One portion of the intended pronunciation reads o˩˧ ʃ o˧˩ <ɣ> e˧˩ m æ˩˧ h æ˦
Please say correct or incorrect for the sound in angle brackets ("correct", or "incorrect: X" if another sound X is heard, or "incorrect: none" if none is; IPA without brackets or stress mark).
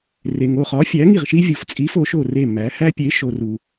incorrect: r